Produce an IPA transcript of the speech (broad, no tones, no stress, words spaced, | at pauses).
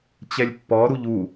t͡ɕɛlʲpːɔɾuʎ u